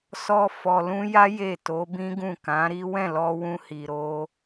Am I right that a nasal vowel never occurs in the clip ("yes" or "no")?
no